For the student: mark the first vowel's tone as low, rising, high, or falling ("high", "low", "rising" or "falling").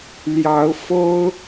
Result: rising